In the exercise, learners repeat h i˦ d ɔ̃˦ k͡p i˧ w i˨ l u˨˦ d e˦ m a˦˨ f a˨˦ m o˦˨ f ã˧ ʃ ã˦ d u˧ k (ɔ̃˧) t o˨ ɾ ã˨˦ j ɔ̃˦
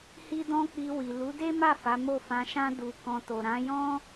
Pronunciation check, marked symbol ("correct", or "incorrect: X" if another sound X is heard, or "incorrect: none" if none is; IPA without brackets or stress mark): correct